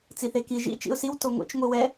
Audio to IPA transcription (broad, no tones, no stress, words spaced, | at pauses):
t͡siθeki ʒḭ t͡ʃḭʊ̯siw toŋʷḛt͡ʃ ŋʷiwɛ